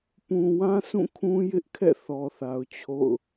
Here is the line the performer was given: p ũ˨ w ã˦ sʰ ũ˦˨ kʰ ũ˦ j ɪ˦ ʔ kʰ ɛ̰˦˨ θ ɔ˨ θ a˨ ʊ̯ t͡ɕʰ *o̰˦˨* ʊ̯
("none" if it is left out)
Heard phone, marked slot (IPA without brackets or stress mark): o̰˦˨